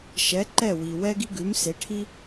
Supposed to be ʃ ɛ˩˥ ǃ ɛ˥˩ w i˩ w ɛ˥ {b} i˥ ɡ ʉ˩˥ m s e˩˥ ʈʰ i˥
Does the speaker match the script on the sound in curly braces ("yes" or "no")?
no